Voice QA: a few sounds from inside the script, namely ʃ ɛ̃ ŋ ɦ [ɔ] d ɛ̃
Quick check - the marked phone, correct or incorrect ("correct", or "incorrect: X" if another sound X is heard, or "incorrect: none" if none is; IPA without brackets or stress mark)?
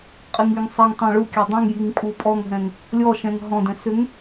incorrect: ɔ̃